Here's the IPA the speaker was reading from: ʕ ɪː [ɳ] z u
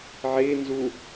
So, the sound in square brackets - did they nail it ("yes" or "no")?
no